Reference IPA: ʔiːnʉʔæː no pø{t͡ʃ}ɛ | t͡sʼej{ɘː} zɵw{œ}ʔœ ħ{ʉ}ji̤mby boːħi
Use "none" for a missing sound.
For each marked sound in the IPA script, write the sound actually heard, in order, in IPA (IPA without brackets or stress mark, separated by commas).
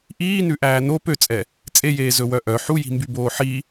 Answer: t͡sʼ, eː, œ, u